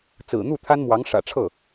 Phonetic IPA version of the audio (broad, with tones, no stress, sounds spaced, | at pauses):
t͡s ɹ̩˨˩ n̪ u˥˩ t̪ʰ a˥ n m w ɑ˧˥ ŋ ʂ ä̰˨˩ ʈ͡ʂʰ ɤ˥˩